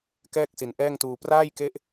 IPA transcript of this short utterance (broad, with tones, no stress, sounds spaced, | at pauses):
k ɛː˥˩ k̚ s i˨˩ n ʔ ɛː˥˩ ŋ t uː˧ p r aː˥˩ j k e˦˥ ʔ